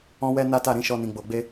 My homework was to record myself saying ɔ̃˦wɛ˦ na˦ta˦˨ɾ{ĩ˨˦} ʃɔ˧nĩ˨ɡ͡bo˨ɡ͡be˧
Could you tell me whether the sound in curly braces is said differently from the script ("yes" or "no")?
no